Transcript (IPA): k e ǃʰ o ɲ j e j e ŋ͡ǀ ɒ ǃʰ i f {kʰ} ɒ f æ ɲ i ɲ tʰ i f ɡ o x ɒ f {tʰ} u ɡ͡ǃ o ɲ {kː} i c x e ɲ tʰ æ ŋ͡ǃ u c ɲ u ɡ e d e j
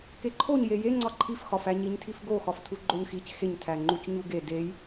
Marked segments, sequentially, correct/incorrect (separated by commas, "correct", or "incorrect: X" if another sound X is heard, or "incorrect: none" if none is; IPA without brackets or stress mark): incorrect: x, correct, incorrect: x